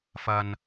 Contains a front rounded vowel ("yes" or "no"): no